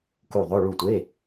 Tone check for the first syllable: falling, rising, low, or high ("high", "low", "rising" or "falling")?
falling